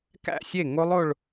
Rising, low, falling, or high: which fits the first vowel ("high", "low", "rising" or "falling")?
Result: falling